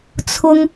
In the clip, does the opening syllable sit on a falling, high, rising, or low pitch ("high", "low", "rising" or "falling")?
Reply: high